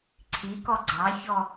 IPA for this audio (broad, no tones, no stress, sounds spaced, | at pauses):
ǀʰ i k ɔ ɡ͡ǀ ɑ ç ɔ